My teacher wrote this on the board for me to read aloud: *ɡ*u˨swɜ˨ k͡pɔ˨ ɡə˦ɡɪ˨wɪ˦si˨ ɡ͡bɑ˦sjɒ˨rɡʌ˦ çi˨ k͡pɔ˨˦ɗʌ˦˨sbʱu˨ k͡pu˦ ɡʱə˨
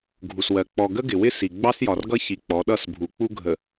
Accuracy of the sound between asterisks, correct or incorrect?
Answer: incorrect